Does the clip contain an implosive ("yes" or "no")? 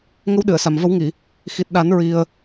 yes